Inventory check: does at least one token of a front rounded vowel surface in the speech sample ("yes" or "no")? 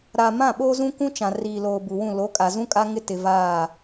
no